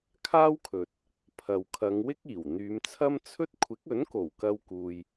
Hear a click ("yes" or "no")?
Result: no